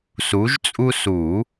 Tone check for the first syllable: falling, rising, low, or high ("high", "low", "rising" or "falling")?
rising